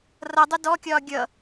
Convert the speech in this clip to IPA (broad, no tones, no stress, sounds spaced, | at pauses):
r ʌ dˤ ʊ d ɔ kʲ ɒː ɡʲ ʌ